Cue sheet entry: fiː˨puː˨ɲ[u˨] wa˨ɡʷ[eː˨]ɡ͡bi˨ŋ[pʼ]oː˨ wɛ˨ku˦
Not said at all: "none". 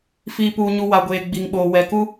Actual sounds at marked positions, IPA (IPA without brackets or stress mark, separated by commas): u˨, eː˨, ɓ